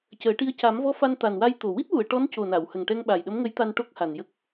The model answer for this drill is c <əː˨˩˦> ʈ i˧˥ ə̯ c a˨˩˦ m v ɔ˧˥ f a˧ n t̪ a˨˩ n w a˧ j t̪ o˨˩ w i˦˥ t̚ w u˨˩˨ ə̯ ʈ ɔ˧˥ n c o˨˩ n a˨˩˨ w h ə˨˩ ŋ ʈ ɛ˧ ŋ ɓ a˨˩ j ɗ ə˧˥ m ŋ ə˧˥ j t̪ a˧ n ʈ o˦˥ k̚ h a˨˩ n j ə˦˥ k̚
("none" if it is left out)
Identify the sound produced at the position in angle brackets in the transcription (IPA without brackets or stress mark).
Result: əː˨˩˦